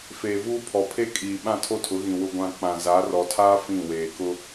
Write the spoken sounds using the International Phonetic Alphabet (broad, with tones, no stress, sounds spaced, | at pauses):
f eː˨ v uː˦ pʰ ɔ˨ pʰ e˦ kʼ iː˨ ɓ ã˦˨ tʰ o˦ tʰ ʊ˨˦ ɣ ĩ˨ w ʊ˨ ɡʷ ã˨ k͡p ã˨ z a˨˦ r ɔ˨ tʰ aː˦ f ĩ˦˨ w eː˨ k ʊ˦